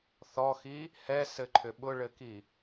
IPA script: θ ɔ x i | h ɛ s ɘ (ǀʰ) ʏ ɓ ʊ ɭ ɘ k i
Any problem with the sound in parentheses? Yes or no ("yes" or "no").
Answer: yes